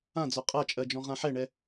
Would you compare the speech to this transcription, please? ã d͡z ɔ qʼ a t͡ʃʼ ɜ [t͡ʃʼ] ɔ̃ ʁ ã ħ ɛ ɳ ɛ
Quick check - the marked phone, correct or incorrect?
incorrect